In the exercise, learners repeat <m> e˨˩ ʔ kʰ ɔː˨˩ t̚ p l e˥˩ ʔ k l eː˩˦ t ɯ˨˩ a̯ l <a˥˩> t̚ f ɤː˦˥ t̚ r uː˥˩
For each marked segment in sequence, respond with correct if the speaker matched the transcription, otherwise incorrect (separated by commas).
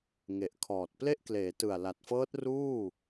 incorrect, incorrect